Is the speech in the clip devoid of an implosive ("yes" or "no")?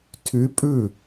yes